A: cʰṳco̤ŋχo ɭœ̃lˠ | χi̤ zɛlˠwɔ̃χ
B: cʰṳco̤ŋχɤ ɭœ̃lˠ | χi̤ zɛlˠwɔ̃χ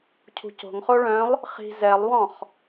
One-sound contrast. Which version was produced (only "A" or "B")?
A